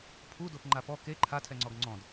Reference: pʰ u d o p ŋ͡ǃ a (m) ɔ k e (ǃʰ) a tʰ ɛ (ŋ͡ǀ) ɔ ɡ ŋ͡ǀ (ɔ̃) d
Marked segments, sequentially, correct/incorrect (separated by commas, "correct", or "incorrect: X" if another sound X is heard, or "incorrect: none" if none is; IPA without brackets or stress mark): incorrect: p, correct, correct, correct